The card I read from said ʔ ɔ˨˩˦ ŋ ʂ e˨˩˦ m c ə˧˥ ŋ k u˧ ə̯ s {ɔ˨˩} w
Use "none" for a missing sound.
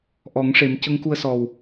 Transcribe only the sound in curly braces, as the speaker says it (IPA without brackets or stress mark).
ɔ˨˩